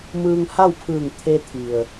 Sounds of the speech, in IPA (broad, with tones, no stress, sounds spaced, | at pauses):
m ɯː˧ ŋ h a˥˨ w pʰ ɯː˧˩ ŋ t̪ʰ e˧ t̪ʰ i˩ ə̯